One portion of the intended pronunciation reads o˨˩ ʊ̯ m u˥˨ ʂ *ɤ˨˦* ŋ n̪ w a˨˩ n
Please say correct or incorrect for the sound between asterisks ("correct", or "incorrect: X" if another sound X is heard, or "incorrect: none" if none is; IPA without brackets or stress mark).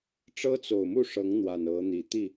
correct